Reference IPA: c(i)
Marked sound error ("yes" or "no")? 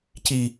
no